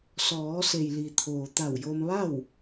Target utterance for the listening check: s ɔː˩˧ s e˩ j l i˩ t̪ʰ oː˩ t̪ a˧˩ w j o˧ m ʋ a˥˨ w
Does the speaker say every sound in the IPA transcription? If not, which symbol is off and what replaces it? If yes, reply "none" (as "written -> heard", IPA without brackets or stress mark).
none